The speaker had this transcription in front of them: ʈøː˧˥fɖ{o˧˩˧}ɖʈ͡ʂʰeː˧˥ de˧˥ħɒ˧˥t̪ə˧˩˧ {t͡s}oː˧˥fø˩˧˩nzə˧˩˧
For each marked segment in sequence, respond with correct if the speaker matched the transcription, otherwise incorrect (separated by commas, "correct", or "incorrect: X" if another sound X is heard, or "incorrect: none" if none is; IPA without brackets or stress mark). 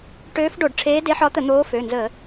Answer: correct, incorrect: n̪